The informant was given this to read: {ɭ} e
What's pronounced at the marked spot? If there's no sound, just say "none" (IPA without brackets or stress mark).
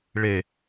ɭ